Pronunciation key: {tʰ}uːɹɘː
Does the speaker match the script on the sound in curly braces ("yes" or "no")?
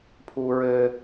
no